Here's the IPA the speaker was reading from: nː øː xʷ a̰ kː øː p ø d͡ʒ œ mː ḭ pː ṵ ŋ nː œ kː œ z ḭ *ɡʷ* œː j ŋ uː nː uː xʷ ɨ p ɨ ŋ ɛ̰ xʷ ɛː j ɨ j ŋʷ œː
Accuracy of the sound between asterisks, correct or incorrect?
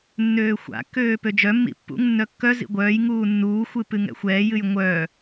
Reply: correct